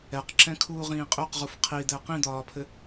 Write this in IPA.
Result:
ɛ q ǁ ɛ̃ kʰ uː ʁ ĩː qʼ ø q ʁ u f qʰ i d̪ ɛ q ĩ d̪ ɒː pʰ ɘ

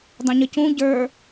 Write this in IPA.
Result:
dˤ ə̃ ɲ ə c ũ ɟ ə˞

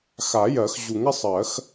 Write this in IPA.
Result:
x a˨˩˦ j ɜ˨˩˦ x ʑ u˨˩˦ ŋ ɪ˧˥ sˤ ɜ˨˩˦ x

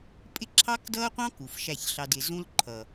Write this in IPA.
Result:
pʼ ɪ˦ ǁʰ ɑ˦ k d ʌː˦ qʷ ɑ̃˦ k u˨ f ʃ æ˦˨ ç ɬ ɑ˧ d ɪ˨ z ũ˦ l ǃʰ ʌ˨

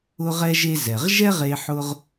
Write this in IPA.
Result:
ʊ˧ ʁ ɛ˧ ʒ e˧ z ɛ˩ ʁ ʒ ɛ˥ ʁ e˧ ħ ʊ˧ ʁ

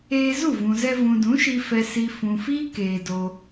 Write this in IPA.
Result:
eː˧ z u˦˨ v ũ˨ z ɛ˧ v ũ˨ d ũ˨˦ ʃ i˧ f ɛ˨ s i˨ f ũ˨ f iː˦ k eː˨ d o˧

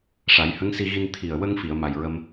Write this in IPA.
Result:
ʂ a˨˩˦ j h ə˧˥ ŋ s i˧ ɣ i˧ n t̪ʰ i˨˩ ə̯ w ə˧ ŋ f i˨˩˨ ə̯ m a˨˩ j ɹ ə˧ m

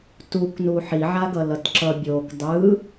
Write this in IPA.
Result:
t u k n u ħ i ʕ a ɡ ʌ l ʌ t ǁ ʌ bʲ o k dˤ ɯ

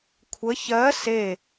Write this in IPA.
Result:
kʷʰ ə ç ɜ s e

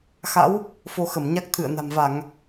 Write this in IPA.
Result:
x a̰˧˥ w | f o˧ x ə˧˩ m ɲ a˦˥ k̚ t̪ʰ ɨ̰˧˨ ə̯ n a̤˨˩ m v a˧˩˨ ŋ

